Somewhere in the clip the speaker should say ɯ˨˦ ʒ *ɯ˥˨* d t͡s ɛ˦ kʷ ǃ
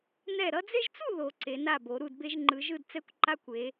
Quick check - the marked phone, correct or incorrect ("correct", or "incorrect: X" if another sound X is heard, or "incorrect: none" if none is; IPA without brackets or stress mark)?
correct